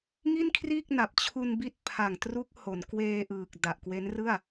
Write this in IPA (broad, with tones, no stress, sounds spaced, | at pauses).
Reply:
ŋ i˥˩ n kʰ r iː˥˩ k̚ n a˨˩ p̚ t͡ɕʰ u˧ n b i˦˥ t̚ pʰ a˨˩ ŋ t r u˦˥ k̚ h o˩˦ n k w eː˧ ʔ ɯː˨˩ k̚ d a˨˩ ʔ k w e˦˥ n r ɯ˥˩ a̯